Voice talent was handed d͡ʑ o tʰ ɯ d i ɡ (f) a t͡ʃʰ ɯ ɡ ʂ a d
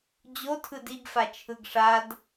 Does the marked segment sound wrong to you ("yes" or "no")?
no